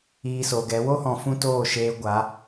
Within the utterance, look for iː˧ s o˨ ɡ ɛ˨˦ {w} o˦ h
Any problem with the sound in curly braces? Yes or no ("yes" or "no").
no